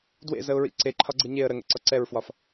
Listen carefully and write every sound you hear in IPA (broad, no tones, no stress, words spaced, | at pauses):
dwḛzəʊ̯ɹḭ ǀeǃʰɒɡ͡ǀɯ ɲeə̯ ɾəŋɛ̰ǀɒ ǀɛɹfwɒf